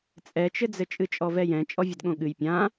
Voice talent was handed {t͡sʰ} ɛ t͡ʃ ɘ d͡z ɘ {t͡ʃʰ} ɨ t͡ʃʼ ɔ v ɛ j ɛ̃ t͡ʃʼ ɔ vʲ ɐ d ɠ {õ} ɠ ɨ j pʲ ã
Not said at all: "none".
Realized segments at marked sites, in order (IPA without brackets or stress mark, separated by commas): t͡sʼ, t͡ʃʼ, õ